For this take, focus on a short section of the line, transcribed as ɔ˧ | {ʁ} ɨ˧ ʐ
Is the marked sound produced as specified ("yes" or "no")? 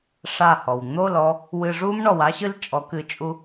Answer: no